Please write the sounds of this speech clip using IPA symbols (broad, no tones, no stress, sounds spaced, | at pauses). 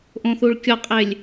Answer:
ʔ õ θ u ɭ kʲ ɔ qʼ e lʲ